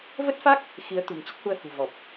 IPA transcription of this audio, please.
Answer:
v ə˦˥ t̚ f a˦˥ k̚ | x i˨˦ ə̯ t̪ ṳ˨˩ n t͡ɕ e˦˥ t̚ h u˧ ə̯ h ṳ˨˩ v ɔ˨˩ p̚

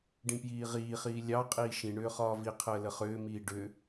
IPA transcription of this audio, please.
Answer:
ɖ ĩ p j iː ʁ iː χ iː lʲ ɑ qʼ iː ʃ ĩ ɳ ʏː χ ɒː v i qʰ əː l ə χ ʏː m iː ɖ ʏ

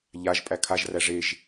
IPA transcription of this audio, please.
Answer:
ʎ a ʒ pʼ æ kʰ a ʒ r æ ʐ e ʒ

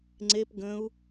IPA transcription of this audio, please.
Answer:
ŋ͡ǀ e p ɡ ə̃ u̯

